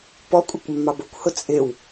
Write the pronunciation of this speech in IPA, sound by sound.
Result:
pɔkʷʼɪkʷmːɑb ʊkʷhʊ t͡sʼɪw

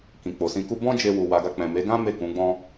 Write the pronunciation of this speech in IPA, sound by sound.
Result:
kĩ˨k͡po˨sĩ˧ku˦ bɔ̃˦d͡ʒe˧wu˨ wa˨ɡa˧ k͡pɛ̃˨me˨˦ɡã˦ me˦˨kũ˨˦ɡ͡bɔ̃˦

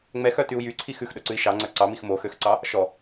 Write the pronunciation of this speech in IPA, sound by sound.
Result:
ŋ͡mɛxœtyu̯ jyǀʰi xʉxɗɵǀʉi̯ ʃɑŋ͡ǀœ ǀɑmix moxøxǀɑ | ʃɔ

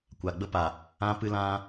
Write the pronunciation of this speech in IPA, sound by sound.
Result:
kʷa˨ɡ͡bə˦pa˨ | ã˦pɨ˦lã˦

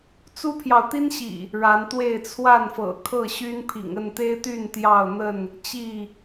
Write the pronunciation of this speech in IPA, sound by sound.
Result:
t͡su˦pʰjɑ˨ʊ̯t̪i˦nɕḭ˨˩ | ɻa˨˦nt̪we˥˨ɪ̯ t͡sʰwa˥˨nfɤ̰˨˩ kʰɤ˥˨ɕy˦npʰḭ˨˩ŋə˥˨n t̪e˦ɪ̯t̪y˥˨n t̪jɑ˥˨ʊ̯n̪ə˥˨n | t͡ɕi˥˨

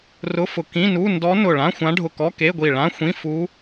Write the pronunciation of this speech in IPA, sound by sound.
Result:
rʊ˧˥˧fʊ˧˩ kĩ˧˥˧nu˧˥˧ ndɔ˧˥ nʊ˧˩ɭã˧˥˧xʷã˧˥ ɖʱʊ˧˩kɔ˧˥˧ke˧˥˧ɡʷi˧˩ ɭã˧˥˧xʷĩ˧˥˧fu˧˥

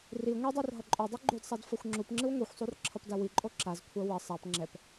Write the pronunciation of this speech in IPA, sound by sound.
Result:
ri ŋʷedˤor ɦʌǃʼodˤi ɡ͡ǃudsˤad fʌxʷŋ͡ǁupŋ͡ǁɯw ŋʷixʷsˤur ǁʰʌpdawiǃʼo ǁazkʷʰa wʌ sˤap ŋ͡ǁɛp

